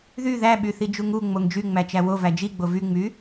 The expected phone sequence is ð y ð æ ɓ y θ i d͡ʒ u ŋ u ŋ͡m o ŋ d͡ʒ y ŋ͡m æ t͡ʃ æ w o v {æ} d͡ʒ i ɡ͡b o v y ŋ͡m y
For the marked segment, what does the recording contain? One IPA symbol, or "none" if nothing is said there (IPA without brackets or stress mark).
æ